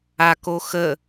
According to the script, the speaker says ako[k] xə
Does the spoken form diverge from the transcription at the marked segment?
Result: yes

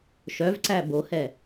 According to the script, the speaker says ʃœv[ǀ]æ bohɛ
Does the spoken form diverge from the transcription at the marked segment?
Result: no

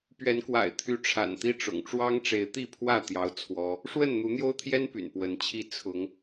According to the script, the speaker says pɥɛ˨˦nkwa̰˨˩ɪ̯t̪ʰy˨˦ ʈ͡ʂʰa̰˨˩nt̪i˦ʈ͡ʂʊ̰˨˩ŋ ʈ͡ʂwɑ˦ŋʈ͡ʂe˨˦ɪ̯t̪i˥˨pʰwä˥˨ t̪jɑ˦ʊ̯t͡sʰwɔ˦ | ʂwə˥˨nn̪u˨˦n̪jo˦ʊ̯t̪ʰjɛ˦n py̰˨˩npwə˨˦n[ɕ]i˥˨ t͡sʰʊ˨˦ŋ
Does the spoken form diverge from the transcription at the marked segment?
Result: yes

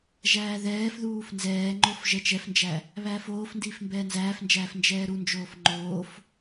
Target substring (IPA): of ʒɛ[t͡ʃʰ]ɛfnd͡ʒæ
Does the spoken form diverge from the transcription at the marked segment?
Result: yes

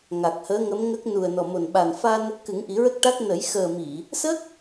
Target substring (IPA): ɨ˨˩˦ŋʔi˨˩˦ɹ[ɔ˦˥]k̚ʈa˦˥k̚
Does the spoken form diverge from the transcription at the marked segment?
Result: yes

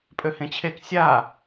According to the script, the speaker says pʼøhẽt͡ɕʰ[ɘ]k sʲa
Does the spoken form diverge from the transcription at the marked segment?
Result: yes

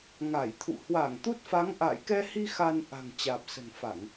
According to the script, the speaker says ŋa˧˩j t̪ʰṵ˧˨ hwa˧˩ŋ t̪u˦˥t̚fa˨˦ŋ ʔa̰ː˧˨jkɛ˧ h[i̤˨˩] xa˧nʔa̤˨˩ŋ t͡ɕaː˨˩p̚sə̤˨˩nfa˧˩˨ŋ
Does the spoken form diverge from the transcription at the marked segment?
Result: yes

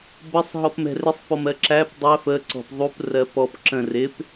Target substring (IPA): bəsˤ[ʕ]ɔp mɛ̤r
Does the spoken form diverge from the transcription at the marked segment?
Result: yes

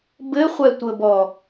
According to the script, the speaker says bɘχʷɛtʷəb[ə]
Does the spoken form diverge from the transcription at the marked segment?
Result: yes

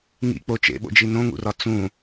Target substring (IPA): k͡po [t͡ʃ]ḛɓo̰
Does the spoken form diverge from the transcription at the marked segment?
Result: no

